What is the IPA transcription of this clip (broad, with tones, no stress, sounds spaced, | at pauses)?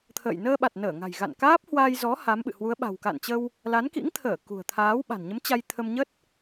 t̪ʰ ə̰ː˧˨ j n əː˧ ɓ a˨˩ t̚ n əː˧˩ ŋ a̤˨˩ j ɣ a̰˧˨ n k aː˦˥ p̚ h w aː˧ j z ɔ˨˦ h a˨˦ m ɓ ɨ̰˧˨ h w u˨˦ ə̯ ɓ a̤˨˩ w k a̰˧˨ n t͡ɕ ə˧ w | l a˨˦ n k ḭ˧˥ ŋ t̪ʰ əː˧˩ k ṳ˨˩ ə̯ t̪ʰ aː˨˦ w ɓ a̤˨˩ n ɲ ə˨˦ m t͡ɕ a˧ j t̪ʰ ə˧ m ɲ ə˦˥ t̚